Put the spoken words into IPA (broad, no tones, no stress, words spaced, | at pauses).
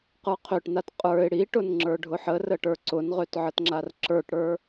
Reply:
qə˞qʰøʈnat qʼə˞ɪ̯ ɽiʈʊnŋ͡ǁə˞ ɖʱʊħərəʈə˞ ǀʊnʁøtʕətŋ͡ǁar ǁə˞ʈɽə˞